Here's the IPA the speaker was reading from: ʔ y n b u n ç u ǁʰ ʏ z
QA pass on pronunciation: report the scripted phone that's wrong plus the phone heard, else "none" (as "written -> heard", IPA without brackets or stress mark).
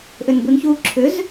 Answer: y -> ʏ